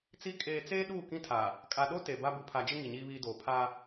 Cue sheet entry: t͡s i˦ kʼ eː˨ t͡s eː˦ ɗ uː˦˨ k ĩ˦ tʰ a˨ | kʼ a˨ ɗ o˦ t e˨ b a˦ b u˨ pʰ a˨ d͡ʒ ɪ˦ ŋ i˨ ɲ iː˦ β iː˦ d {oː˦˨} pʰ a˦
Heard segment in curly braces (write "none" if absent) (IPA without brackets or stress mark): oː˨